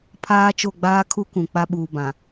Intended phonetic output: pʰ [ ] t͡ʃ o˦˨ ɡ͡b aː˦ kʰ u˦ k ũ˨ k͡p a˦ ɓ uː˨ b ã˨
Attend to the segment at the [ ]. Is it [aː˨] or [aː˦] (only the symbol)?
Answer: aː˦